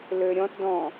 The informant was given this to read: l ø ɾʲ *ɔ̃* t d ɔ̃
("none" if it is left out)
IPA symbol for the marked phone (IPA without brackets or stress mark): ɔ̃